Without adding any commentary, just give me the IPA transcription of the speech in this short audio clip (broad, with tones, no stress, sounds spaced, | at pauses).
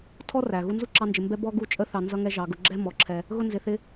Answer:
tʰ ɔ˦ r æ˨ ɣ u˧ n z u˦ ǁ ɑ˧ n d͡ʒ ɪ˨ m b ɛ˦ b ɔ˦ ɡ u˦ t͡ʃʼ ə˦ θ ɑ˨ n z ʌ˧ ŋ ɛ˧ ʒ ɑ˨ ɡ ʊ˨˦ ɡ͡ǁ ɛ˦ m ɔ˨˦ ǁʰ ɛ˧ | ɣ ʊ˧ n z ɪ˨ θ ɪ˧